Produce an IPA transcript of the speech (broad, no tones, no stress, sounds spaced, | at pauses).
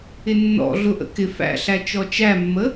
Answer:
ɪ nː ɔ̰ ɮ ʊ ʔ ə̰ k ɪ f æ̰ ɬ æ t͡ʃ ɔ t͡ʃ æ mː ə